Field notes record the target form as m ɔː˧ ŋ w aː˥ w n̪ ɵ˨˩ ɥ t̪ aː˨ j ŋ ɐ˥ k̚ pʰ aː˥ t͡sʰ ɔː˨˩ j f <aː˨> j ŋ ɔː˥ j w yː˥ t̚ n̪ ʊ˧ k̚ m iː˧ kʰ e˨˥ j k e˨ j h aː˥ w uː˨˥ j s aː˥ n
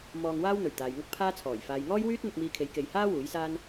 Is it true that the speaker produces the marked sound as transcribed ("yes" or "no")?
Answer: yes